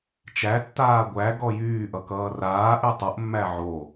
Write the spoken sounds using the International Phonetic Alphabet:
t͡ʃ æ tː aː ɡʷ æ ɡ ɔ j yː ʔ ʌ k ʌː r aː ʔ y tˤ ʌ ʔ mː æ ʕ o

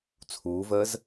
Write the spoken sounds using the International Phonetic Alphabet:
t͡sʰ uː v əː z

